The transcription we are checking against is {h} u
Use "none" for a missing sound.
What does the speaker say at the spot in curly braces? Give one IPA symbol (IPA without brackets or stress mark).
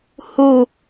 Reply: h